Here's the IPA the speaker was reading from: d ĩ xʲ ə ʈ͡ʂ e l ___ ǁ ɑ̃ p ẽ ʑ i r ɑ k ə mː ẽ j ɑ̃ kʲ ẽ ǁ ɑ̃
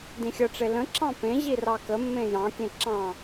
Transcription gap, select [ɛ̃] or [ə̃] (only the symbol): ə̃